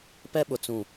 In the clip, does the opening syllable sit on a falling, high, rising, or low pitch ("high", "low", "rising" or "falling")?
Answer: high